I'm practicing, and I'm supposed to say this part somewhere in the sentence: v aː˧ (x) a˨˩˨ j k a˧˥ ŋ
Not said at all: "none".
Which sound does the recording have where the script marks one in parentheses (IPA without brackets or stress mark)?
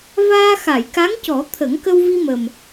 x